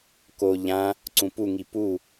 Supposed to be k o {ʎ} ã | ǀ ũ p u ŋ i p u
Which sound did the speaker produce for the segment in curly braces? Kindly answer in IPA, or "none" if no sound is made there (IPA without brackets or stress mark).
ʎ